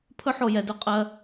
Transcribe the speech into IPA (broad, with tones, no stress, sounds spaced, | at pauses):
pʰ ɵ˥ ħ o˧ j ɛ˩˧ d ɵ˧˥ qʼ ɜ˧